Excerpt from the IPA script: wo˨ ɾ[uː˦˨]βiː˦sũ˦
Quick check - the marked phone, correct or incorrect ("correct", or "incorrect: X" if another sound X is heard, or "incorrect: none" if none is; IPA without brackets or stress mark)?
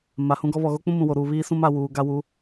incorrect: uː˨